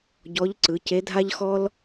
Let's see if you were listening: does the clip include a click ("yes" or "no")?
yes